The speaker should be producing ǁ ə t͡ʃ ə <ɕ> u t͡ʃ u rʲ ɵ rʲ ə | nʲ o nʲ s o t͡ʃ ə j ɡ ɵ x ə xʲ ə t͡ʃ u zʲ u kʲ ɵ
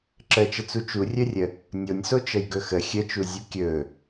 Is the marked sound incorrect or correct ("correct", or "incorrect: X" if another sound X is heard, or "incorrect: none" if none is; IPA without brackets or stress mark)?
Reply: incorrect: t͡s